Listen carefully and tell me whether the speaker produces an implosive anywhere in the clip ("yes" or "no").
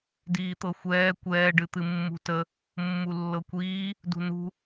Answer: no